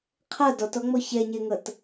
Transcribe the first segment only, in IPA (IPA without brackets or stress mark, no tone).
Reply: qʰ